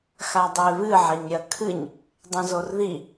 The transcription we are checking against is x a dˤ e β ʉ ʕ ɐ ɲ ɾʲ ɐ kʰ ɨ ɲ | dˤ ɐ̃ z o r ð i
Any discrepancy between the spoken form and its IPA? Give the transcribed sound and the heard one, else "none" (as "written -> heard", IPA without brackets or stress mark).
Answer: ʉ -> ɨ